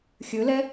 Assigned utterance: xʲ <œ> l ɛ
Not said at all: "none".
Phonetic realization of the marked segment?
ɵ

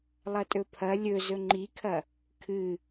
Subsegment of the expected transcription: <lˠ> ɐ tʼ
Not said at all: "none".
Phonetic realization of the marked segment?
lˠ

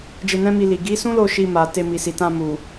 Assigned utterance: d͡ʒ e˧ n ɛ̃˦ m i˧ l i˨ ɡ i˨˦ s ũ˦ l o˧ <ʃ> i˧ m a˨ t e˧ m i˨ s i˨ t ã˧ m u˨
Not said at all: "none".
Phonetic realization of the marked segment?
ʃ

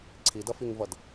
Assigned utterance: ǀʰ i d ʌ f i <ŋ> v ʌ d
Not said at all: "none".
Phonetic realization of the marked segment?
ŋ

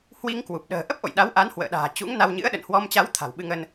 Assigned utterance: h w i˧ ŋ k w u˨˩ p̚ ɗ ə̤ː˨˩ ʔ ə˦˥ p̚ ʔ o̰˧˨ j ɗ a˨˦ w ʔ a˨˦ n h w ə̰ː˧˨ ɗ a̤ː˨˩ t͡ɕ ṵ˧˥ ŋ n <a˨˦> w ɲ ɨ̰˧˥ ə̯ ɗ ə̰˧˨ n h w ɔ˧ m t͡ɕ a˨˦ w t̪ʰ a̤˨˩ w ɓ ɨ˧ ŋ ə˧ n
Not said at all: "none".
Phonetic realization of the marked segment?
a˧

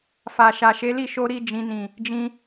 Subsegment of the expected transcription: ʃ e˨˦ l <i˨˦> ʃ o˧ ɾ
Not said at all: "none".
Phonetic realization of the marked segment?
i˦˨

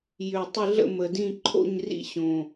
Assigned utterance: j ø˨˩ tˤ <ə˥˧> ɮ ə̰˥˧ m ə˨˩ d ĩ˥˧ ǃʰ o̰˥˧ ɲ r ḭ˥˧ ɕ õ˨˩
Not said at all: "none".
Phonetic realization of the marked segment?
ɪ˥˧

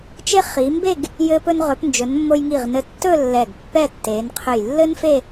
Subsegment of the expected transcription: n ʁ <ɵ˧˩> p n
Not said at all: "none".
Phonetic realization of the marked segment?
ɵ˩˧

